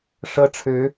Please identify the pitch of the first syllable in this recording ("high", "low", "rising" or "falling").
high